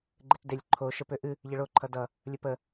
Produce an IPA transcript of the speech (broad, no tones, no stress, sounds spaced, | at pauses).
ɡ͡ǃ e t d e lʲ ǃʰ o ʃ ə p ø ʔ ɨ | ʎ ə ɭ o ǃʰ ʌ d ʌ | lʲ ə p ə